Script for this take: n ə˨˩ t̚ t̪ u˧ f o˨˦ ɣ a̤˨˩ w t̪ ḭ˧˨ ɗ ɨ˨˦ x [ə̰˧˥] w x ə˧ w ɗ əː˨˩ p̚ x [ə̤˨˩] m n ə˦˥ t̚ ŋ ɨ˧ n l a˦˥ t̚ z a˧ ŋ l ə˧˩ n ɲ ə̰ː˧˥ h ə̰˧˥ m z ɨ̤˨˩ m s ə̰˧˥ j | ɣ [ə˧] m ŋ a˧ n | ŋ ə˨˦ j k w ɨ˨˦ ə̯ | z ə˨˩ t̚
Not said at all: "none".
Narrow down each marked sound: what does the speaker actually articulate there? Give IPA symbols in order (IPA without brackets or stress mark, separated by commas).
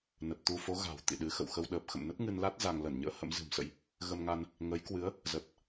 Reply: ə̰˧˨, ə̰˧˨, ə˧